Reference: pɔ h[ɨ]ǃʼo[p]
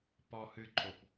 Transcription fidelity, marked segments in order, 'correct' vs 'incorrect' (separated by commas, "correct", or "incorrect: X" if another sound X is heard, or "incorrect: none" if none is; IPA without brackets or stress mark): correct, correct